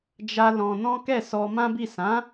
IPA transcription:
d͡ʒ a˦ l ɔ̃˧ n ɔ̃˦ k ɛ˦˨ s ɔ˧ m ã˦ b i˦˨ s ã˨˦

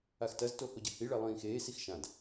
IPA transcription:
a x t ɐ z t o h o ɟ ɐ h i ɭ ɛ lˠ ĩː x eː s i x ʃ ã d

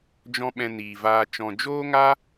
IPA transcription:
d͡ʒ ɔ̃˦ ɓ ɛ̃˧ n iː˨ v aː˧ t͡ʃ ɔ̃˨ d͡ʒ oː˦ ŋ a˦

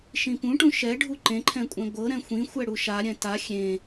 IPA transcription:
ʃ ĩ p ũ ʈ ũ ʃ ɛ ɖʱ u ǃ ẽ ǃʰ ɛ̃ kʷʼ ɛ̃ ɡʷ ɤ ɾ ɛ̃ xʷ ĩ xʷ ɛ ɽ u ʃ a ɾʲ ɛ̃ t a xʲ ẽ

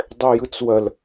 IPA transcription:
dˤ ɛ j ɯ t͡s w ɐ l

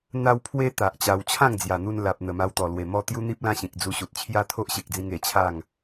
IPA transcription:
n̪ a˧ w pʰ w e˧ t̪ a˨ ʔ t͡ɕ a˧ w t͡ɕʰ ã˥˧ ŋ d͡z j a˨˩ n̪ u˧ n l a˨ p̚ n̪ ə˨˩ m a˧ w t̪ ɔ˨˩ l w e˨˩ m ɔ˥˧ t̪ j u˦ n̪ i˦ p̚ l ã˦ ɕ ĩ˨ k̚ d͡z u˧ ɕ u˨ t̚ t͡ɕʰ j a˦ t̪ʰ o˦ ʔ ɕ e˨ k̚ d͡z ĩ˧ ŋ e˨˩ t͡ɕʰ a˥˧ ŋ

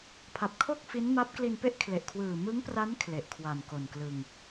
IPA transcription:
pʰ a˨˩ p̚ kʰ o˥˩ k̚ f i˦˥ n m a˦˥ p̚ k l i˧ n p e˥˩ ʔ kʰ l e˨˩ ʔ kʰ w ɯː˨˩ m ɯ˦˥ ŋ p r a˦˥ n kʰ l e˨˩ ʔ kʰ w a˨˩ n k o˨˩ n k l ɯ˧ ŋ

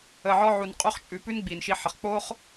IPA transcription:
ə˨ ʕ ɔ˧ ʕ u˨ n qʼ u˧ χ t͡ʃʼ ʉ˨ p ʉ˦ n ɡ͡b i˨ n ʃ i˧ ħ ə˨ χ k͡p o˦ χ

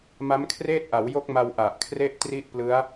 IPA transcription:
m a˦˥ m kʰ r eː˥˩ t̚ ʔ a˩˦ w j o˦˥ k̚ m a˧ w ʔ a˨˩ ʔ kʰ r e˥˩ ʔ t r i˥˩ ʔ p l ɯ˦˥ a̯

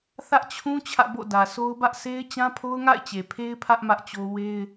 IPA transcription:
θ ä˦ ʔ t͡ɕʰ ũ˦ t͡ɕʰ ä̰˦˨ b o̰˦˨ d ä˨ sʰ o˦ ʊ̯ b ä˦ ʔ sʰ e˦ ɪ̯ t͡ɕ ã˦ pʰ o˦ ʊ̯ ŋ a̰˦˨ ɪ̯ t͡ɕ e˨ pʰ e˦ ɪ̯ pʰ ä˦ ʔ m ä˦ ʔ t͡ɕ o˦ w e˦ ɪ̯

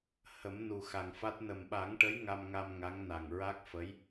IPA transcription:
h ə˨˩˦ m n u˨˩ x a˨˩ ŋ f a˦˥ t̚ n ə˨˩ m ɓ a˨˩˦ ŋ ʈ ə˧˥ j ŋ a˧ m ŋ a˧ m ŋ a˧˥ ŋ n a˨˩ ŋ ɹ a˦˥ k̚ f ə˧˥ j

